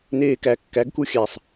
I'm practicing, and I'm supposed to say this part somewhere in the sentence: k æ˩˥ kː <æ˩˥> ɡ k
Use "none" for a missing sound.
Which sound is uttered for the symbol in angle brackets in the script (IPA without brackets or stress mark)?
æ˩˥